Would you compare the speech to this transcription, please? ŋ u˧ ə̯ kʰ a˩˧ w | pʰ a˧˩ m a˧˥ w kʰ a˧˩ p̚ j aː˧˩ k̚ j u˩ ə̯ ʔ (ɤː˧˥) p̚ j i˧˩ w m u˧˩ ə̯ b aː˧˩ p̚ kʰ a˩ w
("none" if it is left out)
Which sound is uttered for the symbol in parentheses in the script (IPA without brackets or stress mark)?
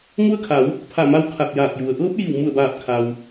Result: ɤː˧˥